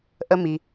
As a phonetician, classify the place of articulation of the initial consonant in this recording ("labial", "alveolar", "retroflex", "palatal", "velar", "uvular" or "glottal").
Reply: glottal